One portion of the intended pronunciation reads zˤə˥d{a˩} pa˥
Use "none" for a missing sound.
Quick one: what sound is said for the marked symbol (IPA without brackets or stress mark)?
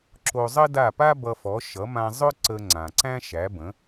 a˥˩